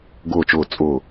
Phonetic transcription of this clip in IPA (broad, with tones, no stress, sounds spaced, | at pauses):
ɡ ʊː˧˩ t͡ʃ ʊː˧˩ t͡sʼ ʊː˧˩